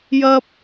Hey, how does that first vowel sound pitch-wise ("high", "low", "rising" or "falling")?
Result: high